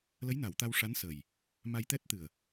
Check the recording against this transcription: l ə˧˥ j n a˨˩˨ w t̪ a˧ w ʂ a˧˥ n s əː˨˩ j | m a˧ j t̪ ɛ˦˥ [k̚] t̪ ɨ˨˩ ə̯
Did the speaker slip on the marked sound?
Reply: yes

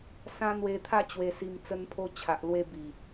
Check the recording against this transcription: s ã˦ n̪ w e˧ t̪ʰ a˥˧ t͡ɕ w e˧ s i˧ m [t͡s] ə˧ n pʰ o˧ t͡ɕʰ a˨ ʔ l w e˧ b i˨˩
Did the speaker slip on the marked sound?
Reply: no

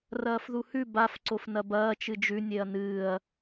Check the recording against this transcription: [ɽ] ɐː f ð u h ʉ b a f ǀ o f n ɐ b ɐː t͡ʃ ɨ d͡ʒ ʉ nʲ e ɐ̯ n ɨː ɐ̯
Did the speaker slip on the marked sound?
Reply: yes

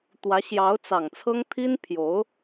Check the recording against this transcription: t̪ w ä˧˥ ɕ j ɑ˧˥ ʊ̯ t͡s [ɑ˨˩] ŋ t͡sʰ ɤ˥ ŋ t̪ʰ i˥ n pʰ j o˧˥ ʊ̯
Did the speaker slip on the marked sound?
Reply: no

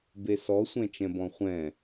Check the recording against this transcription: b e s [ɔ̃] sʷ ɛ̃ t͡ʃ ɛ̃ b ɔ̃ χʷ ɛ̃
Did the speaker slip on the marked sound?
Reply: yes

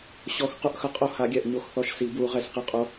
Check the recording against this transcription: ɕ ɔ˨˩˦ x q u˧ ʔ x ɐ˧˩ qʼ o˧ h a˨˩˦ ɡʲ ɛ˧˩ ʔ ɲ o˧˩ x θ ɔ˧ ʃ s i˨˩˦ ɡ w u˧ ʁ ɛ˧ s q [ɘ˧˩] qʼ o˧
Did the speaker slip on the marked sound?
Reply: no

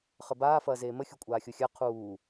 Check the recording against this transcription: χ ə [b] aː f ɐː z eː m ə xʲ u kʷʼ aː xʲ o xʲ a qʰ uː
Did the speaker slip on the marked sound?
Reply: no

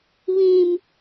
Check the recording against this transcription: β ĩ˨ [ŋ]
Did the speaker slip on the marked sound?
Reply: yes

